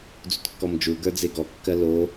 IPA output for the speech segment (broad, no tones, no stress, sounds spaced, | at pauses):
d͡z ṵ t kː ɔ m d͡ʒ u ɡ ə˞ d͡z e ɡ ɔ kː ɜ l o